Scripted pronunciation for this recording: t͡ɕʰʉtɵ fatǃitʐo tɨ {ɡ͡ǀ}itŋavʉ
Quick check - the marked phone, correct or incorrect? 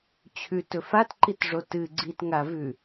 correct